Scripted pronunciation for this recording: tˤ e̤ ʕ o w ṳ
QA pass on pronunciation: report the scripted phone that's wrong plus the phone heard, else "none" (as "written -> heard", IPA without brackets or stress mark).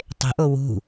ʕ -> ʔ